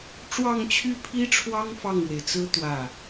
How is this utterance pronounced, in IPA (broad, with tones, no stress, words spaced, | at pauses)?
ʈ͡ʂwɑ˥˧ŋt͡ɕʰy˥˩pʰi˥ʈ͡ʂʰwɑ˥ŋ fɑ˥˩ŋɻwe˩ɪ̯t͡sɹ̩˥ t̪wä˥˩